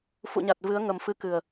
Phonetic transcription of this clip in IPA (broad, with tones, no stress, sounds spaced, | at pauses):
f ṵ˧˨ ɲ a˨˩ t̚ v ɨ˨˦ ə̯ ŋ ə˨˩ m f ɨ˨˦ k ɨ˨˩ ə̯